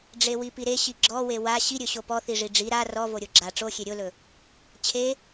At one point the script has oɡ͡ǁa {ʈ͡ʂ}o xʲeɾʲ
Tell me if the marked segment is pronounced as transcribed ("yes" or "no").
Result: yes